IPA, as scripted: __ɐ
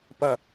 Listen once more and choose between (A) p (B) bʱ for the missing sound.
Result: A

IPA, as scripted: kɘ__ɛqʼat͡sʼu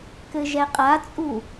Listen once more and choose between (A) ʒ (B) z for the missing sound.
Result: A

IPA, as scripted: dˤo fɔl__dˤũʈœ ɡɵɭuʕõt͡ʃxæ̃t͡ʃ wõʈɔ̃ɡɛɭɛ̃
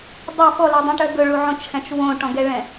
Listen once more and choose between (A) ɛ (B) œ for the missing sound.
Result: B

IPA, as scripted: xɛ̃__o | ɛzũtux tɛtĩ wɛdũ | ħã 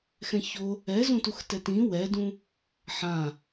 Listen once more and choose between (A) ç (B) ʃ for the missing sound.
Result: A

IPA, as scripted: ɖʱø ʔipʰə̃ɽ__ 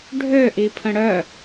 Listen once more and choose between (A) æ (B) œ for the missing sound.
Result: B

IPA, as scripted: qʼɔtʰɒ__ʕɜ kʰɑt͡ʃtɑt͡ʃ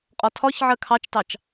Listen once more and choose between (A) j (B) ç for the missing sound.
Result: B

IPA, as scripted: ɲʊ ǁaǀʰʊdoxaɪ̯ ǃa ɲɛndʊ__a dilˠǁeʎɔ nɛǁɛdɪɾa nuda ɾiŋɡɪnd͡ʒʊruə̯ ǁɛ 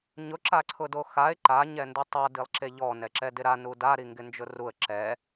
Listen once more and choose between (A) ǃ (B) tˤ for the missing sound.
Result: B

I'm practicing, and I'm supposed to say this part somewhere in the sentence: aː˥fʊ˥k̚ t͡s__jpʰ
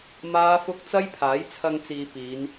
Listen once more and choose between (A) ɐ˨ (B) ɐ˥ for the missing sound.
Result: B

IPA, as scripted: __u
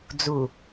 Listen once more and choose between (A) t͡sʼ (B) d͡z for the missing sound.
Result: B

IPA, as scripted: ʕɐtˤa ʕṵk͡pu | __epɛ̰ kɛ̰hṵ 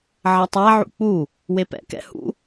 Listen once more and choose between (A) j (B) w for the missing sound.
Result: B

